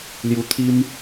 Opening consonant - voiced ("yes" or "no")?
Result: yes